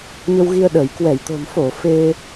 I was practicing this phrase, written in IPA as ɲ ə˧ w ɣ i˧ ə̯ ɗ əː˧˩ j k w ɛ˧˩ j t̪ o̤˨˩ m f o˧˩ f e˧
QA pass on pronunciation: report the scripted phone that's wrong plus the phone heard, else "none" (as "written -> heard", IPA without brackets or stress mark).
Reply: none